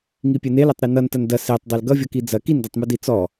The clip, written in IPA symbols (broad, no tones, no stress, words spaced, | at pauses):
ŋipʲenelʌtˤ ɾinʌntɐn dɐ setˤ dˤelɡʌvʲʌ kid͡zɐ kindɐtˤmu dit͡sɔ